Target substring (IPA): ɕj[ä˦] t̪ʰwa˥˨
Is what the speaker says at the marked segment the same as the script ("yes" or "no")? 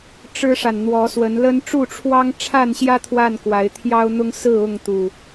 yes